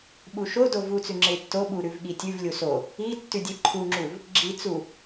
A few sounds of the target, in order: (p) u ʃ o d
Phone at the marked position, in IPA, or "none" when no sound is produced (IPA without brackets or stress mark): ɓ